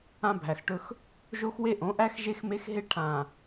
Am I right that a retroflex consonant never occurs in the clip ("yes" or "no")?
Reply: no